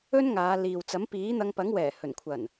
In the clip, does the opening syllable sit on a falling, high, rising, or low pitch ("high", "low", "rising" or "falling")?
high